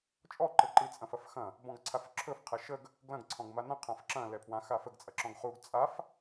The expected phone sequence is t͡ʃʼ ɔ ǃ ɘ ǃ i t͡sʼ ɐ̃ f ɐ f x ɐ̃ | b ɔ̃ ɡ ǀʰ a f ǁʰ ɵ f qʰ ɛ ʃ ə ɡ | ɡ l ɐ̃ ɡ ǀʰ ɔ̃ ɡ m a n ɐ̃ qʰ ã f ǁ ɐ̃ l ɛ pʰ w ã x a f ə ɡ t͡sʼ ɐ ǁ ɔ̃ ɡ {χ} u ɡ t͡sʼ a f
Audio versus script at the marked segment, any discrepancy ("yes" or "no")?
no